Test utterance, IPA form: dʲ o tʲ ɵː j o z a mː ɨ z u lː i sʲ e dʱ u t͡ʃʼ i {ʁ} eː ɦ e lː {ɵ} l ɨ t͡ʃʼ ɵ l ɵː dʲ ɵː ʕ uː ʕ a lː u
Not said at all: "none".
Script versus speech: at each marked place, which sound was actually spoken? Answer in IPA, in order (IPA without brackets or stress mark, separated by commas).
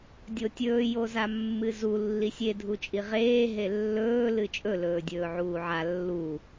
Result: ʁ, ɵː